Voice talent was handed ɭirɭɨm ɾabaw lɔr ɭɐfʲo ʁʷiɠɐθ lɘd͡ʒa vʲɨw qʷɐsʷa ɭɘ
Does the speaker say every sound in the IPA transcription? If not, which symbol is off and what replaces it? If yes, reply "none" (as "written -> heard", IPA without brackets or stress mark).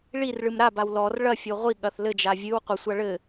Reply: none